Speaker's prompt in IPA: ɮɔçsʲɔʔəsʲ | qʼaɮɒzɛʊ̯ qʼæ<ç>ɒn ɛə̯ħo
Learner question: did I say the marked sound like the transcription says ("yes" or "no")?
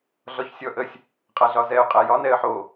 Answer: no